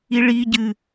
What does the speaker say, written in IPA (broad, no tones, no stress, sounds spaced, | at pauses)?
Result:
i ɭ i ɟ ɨ